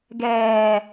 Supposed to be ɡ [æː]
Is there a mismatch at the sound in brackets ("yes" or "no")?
yes